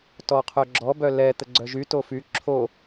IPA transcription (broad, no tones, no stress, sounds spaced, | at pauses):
t ɔ qʰ œ ɡ͡ǁ ɔ b œ l ɛ t̪ ə ɡ͡ǀ œ ʒ y t o f y ǁʰ o